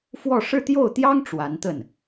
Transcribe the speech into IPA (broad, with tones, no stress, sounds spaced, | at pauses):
f w ɔ˥˧ ʂ ɻ̩˥˧ t̪ j o˥˩ ʊ̯ t̪ j ɑ˥ ŋ ʈ͡ʂ w a˧˥ n t̪ ə˥˩ n